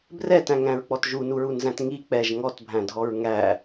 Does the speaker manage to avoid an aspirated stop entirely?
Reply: yes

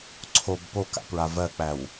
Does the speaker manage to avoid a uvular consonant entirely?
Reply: yes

